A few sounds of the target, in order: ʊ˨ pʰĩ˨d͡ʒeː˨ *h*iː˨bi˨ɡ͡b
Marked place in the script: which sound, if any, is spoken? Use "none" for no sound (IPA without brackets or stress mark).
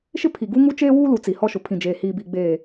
h